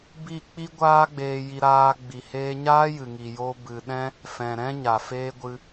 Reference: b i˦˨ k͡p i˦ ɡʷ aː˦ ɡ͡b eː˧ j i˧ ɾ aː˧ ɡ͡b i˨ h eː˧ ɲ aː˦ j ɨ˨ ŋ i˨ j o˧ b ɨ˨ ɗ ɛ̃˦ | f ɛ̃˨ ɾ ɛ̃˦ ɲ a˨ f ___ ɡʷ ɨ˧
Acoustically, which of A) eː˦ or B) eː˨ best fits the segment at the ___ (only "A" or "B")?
A